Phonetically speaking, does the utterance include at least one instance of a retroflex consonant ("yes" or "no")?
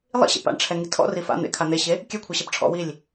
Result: yes